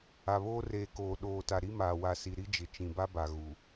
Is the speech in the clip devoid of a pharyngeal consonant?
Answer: yes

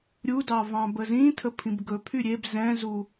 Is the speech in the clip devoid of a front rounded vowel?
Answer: no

